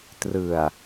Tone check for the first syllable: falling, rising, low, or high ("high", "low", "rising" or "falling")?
low